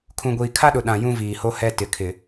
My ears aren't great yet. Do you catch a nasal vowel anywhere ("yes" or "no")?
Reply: yes